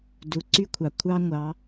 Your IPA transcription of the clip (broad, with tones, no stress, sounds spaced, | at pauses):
d u˩ ǀ y˧ kʷʰ ɑ˩ kʷʰ ɑ˧ ŋʷ ɑ˩˧